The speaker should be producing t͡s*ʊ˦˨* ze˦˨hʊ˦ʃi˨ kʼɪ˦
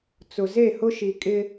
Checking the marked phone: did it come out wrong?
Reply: yes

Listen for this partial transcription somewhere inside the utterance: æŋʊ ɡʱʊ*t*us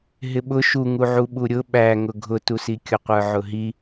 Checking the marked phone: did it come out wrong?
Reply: no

